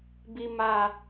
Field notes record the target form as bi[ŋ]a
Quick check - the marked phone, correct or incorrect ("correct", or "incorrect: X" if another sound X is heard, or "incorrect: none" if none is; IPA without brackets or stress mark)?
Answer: incorrect: m